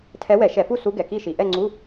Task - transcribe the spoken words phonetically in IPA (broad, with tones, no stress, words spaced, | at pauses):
tʰɛ˧˥wɛ˧˩˧ʃɛ˧˩˧fu˥˨ su˧˥ɡɛ˩ki˥˨ʃi˩ ʔɛ˥˨ŋ͡ǀu˧˥˧